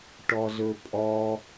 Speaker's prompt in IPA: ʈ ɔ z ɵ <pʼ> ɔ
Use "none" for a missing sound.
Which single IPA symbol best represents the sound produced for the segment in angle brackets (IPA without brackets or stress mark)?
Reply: pʼ